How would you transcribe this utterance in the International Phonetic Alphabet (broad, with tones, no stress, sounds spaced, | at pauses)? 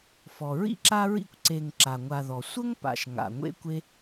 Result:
f ɔ˩ ɹ ḭ˥ ǁ a˥ ɹ ḭ˥ kʷ ǀ e˨ ŋ ǁ a˩ ŋʷ a˨ ð ɔ˩ sʷ ə˥ ŋ p a̰˨ ʃ ŋ a̰˩ ŋʷ ḛ˦ kʷ e˦